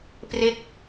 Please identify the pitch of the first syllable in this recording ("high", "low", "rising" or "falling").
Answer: falling